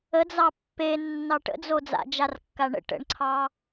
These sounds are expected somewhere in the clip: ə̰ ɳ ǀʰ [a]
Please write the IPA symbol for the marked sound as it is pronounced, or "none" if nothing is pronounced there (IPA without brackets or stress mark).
ɑ